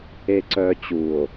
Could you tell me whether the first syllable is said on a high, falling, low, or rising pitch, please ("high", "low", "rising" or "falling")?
low